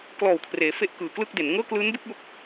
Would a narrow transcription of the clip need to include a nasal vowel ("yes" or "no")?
no